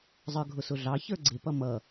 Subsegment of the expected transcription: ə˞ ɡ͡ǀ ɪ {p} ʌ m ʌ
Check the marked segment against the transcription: correct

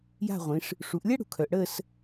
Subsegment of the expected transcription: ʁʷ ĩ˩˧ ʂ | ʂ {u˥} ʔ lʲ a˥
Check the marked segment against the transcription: incorrect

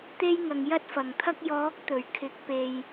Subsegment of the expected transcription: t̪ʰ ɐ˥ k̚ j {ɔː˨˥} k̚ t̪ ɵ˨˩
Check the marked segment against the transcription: correct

